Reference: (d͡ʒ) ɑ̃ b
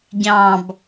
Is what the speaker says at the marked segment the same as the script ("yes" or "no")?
no